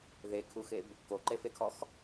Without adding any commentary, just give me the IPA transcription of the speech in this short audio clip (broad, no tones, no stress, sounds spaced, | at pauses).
ð e kʰ u x e b | k o ǃ e f e kʰ ɔ x